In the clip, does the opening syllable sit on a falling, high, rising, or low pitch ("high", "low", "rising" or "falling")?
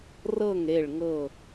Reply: falling